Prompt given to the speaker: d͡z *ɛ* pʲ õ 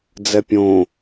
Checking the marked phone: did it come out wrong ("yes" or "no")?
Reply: no